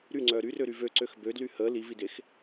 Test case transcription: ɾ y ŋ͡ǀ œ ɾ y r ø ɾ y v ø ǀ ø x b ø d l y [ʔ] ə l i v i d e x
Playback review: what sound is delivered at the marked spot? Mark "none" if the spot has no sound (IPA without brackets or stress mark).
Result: h